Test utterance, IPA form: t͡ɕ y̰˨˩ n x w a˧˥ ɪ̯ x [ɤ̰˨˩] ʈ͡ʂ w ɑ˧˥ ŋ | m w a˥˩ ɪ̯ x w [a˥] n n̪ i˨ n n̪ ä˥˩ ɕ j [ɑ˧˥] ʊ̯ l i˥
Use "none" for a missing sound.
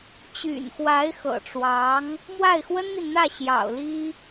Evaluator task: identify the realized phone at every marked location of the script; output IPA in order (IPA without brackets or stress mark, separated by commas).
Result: ɤ̰˨˩, ə˥, ɑ̰˨˩